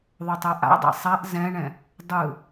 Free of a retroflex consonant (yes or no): no